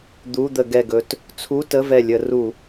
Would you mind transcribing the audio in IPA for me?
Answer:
d̪ u˧˥˧ d̪ ə˧˩˧ ɡ ɛ˧˩ ɡ ɵ˧ t | t͡sʰ u˧˥˧ t ə˧˥˧ v ɛ˧˩ lʲ ə˧˩˧ r u˧˩˧

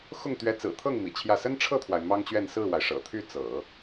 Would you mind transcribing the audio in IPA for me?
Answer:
x ʊ˥˩ ŋ t̪ ɥ ɛ˧˥ t͡s ɹ̩˨˩ t̪ʰ ɤ˥˩ ŋ m ḭ˨˩ t͡ɕʰ j ä˥˩ s ə˥ n ʈ͡ʂʰ ɤ˥˩ t̪ʰ w a˩ ɪ̯ m ɑ˥ ŋ t͡ɕ ɥ ɛ˥˧ n s ɹ̩˥˩ w a˩ ɪ̯ ʂ ɤ̰˨˩ t̪ʰ y˥˩ t͡s ɤ̰˨˩˦

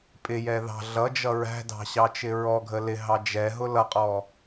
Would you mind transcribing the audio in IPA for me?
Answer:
pʼ ɪ j ɛ ð ɑ̤ ɮ ʌ d͡ʒ ʌ ɹ æ̤ d ɑ̤ ɕ ɑ t͡ʃ ɪ ɹ ɔ ɡʱ ə l ɪ ɦ ɑ d͡ʒ ɛ ɦ ʊ l ʌ qʼ ɔ

